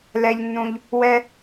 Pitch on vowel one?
low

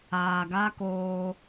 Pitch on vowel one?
low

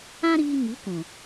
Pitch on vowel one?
high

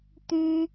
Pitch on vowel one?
high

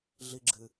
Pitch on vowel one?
high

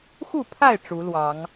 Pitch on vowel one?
falling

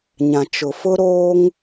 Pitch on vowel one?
low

